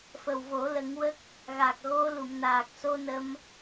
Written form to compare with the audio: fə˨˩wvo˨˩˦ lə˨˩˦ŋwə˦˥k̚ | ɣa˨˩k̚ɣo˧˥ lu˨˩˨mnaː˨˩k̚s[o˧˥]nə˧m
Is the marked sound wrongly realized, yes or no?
yes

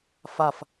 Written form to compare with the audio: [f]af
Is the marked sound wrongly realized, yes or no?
no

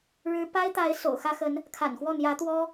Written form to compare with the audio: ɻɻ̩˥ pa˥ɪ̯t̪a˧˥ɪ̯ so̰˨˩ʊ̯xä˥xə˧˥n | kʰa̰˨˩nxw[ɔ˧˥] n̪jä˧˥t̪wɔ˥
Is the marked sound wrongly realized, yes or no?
yes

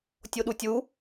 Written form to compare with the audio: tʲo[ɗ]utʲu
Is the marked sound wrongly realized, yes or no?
no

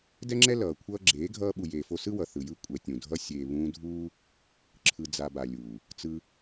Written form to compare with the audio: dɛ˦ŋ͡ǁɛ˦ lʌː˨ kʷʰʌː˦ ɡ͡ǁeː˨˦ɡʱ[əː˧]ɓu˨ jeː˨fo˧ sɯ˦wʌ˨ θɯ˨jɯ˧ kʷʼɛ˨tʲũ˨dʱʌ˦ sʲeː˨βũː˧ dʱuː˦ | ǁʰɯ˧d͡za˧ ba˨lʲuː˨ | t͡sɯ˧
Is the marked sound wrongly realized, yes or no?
yes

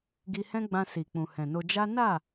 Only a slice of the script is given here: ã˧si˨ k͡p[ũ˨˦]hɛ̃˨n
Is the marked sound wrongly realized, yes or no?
yes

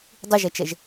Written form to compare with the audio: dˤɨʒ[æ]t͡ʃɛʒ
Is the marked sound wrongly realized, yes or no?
yes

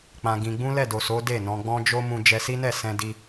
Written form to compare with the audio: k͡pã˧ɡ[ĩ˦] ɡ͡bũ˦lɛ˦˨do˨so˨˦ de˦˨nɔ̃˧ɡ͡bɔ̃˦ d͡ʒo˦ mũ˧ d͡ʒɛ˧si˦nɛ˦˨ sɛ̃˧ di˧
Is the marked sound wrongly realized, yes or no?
yes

